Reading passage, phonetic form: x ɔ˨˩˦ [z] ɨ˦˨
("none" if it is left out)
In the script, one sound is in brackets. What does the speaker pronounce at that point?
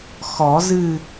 z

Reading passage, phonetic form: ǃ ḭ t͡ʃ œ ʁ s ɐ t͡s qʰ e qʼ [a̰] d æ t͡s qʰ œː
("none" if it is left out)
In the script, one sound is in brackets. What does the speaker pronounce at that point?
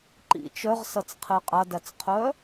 a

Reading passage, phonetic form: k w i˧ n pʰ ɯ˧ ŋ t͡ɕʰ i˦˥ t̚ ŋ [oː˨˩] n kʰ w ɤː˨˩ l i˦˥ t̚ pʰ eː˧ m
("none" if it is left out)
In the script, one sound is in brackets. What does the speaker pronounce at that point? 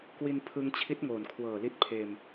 oː˨˩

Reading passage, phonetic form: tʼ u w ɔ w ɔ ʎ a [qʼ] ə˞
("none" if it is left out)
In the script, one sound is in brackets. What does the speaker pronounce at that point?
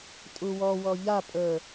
pʼ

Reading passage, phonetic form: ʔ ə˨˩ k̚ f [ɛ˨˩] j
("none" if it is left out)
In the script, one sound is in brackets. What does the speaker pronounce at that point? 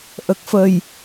ə˨˩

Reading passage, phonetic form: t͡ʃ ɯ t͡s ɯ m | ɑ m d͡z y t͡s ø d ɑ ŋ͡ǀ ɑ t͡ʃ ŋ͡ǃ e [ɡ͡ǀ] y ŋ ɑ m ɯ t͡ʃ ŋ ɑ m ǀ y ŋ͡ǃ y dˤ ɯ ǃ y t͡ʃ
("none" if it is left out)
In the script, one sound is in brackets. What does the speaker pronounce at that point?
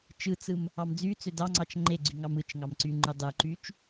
ɡ͡ǀ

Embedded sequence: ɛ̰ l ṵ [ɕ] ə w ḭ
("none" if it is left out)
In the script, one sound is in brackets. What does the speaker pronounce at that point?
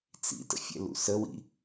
s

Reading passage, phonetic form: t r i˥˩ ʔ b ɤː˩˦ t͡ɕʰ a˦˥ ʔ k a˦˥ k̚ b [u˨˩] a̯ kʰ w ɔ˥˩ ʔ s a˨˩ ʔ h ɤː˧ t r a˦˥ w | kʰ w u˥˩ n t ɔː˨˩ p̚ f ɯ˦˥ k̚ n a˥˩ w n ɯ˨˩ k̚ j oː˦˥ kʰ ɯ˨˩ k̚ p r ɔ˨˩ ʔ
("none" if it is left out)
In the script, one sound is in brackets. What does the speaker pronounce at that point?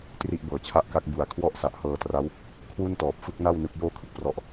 u˨˩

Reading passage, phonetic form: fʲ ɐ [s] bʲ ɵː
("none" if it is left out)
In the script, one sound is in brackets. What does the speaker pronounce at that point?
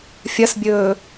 s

